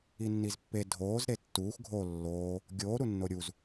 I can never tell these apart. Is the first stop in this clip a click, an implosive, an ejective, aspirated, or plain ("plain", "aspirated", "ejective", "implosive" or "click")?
plain